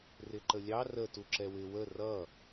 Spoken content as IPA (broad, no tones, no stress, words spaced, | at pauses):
rɪǃəlʲɑ rə tuǁɛwɪ wə rʌ